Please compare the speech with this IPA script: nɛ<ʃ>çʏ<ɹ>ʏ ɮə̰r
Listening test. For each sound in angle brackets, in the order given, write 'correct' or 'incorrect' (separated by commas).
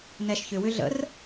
correct, incorrect